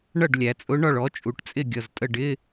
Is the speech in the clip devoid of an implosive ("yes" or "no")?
yes